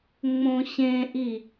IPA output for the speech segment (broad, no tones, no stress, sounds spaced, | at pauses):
ŋ͡m õ ɕ ẽ ʔ i